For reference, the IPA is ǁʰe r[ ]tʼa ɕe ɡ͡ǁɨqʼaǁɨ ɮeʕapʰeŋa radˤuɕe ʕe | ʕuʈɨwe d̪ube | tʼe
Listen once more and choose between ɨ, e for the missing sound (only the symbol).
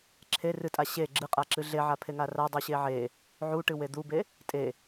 ɨ